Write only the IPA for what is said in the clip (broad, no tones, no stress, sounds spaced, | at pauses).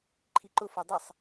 ǃʰ i ǃ ʊ f o dˤ ə sˤ